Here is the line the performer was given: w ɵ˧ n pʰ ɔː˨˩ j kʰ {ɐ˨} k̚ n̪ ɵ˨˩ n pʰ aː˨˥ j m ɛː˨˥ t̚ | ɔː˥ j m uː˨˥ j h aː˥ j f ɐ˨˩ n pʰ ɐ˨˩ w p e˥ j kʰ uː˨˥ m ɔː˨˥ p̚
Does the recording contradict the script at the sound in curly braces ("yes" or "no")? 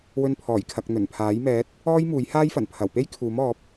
no